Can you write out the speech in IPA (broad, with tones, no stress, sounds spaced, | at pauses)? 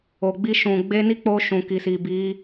o˨ ɡ͡b i˧ ʃ ũ˨ ɡ͡b e˧ n i˦ k͡p o˧ ʃ ũ˨ k i˨ s i˨ b i˨˦